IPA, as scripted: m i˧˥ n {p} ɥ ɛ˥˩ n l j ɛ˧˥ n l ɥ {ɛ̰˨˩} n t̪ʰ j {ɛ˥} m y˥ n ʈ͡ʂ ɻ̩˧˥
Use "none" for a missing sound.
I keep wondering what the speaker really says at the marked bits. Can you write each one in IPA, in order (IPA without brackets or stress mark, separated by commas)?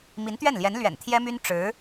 t̪, ɛ̰˨˩, ɛ˥